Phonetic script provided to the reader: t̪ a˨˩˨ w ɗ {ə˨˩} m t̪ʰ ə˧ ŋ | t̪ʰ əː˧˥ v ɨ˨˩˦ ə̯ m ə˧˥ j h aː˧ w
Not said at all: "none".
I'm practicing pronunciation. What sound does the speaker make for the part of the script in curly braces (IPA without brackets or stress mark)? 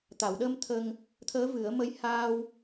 ə˧